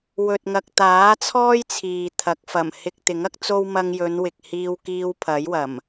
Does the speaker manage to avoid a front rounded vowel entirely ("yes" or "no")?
yes